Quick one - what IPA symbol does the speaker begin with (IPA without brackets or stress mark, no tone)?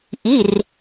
ʔ